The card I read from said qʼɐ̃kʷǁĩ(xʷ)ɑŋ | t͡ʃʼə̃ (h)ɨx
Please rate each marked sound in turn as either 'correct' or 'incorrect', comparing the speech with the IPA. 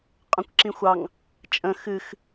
correct, incorrect: x

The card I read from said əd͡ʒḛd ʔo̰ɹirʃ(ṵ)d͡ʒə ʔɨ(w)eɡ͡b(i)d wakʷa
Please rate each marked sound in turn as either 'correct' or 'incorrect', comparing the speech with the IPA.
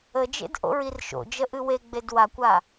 incorrect: o̰, correct, incorrect: e

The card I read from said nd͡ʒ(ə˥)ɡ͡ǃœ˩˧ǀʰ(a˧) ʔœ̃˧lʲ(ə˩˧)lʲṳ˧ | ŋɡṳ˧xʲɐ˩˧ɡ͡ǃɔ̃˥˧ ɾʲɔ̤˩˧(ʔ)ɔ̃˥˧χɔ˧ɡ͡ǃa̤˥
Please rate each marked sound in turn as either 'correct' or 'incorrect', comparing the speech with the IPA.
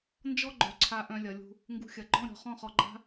incorrect: ɔ˥, correct, incorrect: ɐ˩˧, incorrect: χ

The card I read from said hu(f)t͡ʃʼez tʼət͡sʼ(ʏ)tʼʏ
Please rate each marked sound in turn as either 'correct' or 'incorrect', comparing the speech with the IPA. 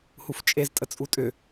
correct, incorrect: u

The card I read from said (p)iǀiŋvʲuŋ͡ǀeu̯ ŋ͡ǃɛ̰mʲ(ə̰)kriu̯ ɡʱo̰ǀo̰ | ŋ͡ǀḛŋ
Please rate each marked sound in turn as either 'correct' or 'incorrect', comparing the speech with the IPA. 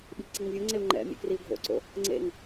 incorrect: ɓ, incorrect: ɛ̰

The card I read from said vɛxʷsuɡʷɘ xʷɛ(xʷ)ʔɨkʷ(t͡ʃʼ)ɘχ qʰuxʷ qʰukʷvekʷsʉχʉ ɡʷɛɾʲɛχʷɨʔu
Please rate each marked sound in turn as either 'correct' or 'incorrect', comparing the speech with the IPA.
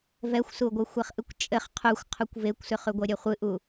incorrect: χ, correct

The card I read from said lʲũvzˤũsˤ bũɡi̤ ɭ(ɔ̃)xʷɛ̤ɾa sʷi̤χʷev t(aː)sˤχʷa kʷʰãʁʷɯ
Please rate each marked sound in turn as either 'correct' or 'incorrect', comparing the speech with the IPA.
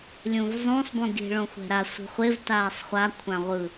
incorrect: õ, correct

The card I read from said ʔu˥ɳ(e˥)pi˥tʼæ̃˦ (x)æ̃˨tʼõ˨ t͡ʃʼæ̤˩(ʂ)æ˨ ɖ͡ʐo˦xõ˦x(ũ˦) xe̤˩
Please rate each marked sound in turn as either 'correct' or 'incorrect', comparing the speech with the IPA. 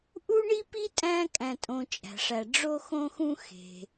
incorrect: i˥, incorrect: kʼ, correct, correct

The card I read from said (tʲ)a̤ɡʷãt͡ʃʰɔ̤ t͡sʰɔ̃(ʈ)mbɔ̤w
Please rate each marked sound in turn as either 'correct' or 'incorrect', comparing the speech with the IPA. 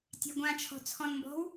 correct, incorrect: n

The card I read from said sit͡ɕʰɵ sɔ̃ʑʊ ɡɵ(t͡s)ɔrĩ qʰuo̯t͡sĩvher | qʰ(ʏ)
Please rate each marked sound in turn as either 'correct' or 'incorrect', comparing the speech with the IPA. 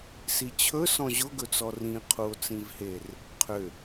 correct, correct

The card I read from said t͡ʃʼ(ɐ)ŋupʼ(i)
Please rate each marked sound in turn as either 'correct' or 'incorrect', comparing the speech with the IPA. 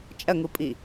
correct, correct

